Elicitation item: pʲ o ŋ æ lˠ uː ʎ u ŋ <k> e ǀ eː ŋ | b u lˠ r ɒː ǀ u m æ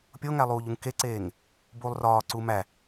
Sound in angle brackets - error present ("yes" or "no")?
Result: no